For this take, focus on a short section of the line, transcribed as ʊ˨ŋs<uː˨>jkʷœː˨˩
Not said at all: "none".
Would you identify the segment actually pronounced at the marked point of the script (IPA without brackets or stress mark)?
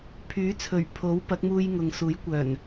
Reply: uː˨˥